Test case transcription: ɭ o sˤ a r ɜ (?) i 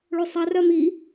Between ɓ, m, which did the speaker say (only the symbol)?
m